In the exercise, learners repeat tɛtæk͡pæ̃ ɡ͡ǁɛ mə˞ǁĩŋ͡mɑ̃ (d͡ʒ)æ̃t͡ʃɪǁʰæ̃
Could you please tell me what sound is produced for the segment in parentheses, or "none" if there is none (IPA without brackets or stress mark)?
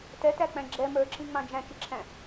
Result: d͡ʒ